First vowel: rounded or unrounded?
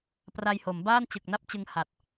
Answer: unrounded